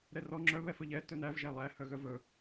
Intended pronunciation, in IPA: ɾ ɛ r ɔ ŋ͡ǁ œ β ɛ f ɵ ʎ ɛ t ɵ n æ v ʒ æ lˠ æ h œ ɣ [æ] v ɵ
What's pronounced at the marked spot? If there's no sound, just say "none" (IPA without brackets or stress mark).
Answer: œ